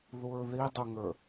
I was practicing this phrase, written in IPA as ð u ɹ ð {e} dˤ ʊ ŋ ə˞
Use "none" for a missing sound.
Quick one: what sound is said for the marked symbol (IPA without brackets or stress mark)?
i